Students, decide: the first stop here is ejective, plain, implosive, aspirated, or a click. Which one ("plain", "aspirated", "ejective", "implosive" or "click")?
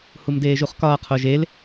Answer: plain